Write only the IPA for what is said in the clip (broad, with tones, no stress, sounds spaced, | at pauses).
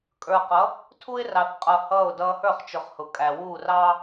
kʼ ə˞˨ q ʌ˨˦ | tʰ u˦ ɪ̯ r ɑ˨ θ qʼ ʌ˨ h ʌː˦˨ ʊ̯ d ʌː˦ h ə˞˦˨ χ t͡ʃ ʊ˨ χ h ʊ˨ kʼ æ˨ w uː˦˨ r ɑː˦